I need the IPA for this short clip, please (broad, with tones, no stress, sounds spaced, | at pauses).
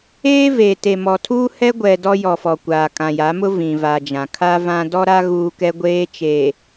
eː˦ v e˨ t e˨ m ɔ˨ tʰ uː˦ h ɛ˦ ɡʷ ɛ˨ d ɔ˦ j ɔ˨ f ɔ˨ kʷ aː˨ kʼ ã˨ j a˨˦ m ʊ˦ v ĩ˨ v a˨ d͡ʒ ã˨ kʰ a˦ v ã˦ d ɔ˦ ɾ a˦ ɣ uː˦ k ɛ˦ ɡʷ eː˦ t͡ʃ eː˨